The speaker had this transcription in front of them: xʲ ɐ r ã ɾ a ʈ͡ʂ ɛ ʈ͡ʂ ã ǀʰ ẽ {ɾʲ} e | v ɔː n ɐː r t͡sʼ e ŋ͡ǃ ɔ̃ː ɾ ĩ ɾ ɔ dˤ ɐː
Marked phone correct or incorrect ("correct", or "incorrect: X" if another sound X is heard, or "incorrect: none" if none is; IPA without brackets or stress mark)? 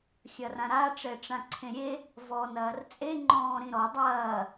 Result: correct